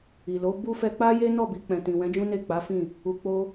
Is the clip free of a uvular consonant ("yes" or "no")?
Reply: yes